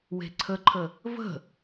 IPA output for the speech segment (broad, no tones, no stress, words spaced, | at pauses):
we̤ǀʰəǃʰə | və̤